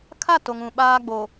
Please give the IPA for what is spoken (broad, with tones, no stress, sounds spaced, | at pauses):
kʰ a˦˨ t o˦ ŋ ũ˦˨ ɓ aː˦ ɡ͡b o˨